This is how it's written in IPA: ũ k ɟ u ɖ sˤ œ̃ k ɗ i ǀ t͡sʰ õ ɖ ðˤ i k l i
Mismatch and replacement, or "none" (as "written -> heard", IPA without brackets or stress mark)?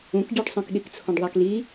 ǀ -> k